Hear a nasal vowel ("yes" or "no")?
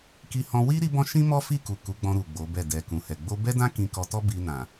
yes